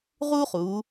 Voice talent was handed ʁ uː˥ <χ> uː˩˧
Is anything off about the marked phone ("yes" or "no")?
no